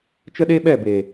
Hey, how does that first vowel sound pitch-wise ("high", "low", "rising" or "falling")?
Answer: high